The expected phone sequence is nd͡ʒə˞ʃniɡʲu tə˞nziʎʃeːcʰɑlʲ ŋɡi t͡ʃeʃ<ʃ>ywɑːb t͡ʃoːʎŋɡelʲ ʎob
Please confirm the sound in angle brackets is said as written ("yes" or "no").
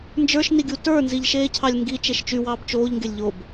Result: no